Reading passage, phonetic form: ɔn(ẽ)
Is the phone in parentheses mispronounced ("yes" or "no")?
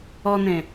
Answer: no